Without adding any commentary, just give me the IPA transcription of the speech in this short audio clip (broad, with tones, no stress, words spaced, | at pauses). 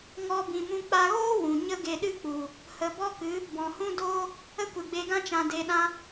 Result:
ŋɔ˧ bĩ˨mũ˧ k͡pa˧ɣoː˦ wũ˨ ɲə˦ɡe˧ɗɨ˦k͡pu˨ | hə˨bɔ˦kɨ˨˦ | bɔ̃˨hũ˦doː˦ | ə˦kʷɨ˨ɡ͡be˧ɡã˦ t͡ʃã˨de˨ɗã˧